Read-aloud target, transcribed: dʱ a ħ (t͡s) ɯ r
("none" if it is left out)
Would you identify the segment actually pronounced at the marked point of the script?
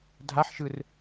ʃ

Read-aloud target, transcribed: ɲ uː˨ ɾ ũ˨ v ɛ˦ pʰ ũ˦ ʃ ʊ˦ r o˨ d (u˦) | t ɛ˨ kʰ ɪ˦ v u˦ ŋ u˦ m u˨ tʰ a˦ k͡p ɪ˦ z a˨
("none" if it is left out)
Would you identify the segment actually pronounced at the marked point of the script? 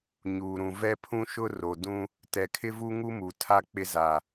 ũ˦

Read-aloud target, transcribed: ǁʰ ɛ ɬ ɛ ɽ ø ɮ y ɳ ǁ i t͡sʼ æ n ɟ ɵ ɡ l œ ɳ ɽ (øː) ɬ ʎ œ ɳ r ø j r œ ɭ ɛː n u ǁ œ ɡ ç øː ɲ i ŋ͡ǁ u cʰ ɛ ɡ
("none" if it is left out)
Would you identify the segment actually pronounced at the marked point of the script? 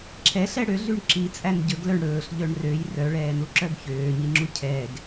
ɵː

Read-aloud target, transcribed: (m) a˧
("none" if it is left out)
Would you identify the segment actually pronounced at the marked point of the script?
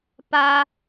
p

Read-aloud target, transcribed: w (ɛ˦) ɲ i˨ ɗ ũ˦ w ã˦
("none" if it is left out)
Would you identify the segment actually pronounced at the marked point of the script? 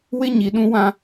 ɪ˦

